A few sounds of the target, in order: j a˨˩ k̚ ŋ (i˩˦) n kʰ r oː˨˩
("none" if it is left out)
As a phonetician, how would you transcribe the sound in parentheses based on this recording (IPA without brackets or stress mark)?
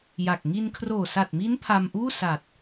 i˧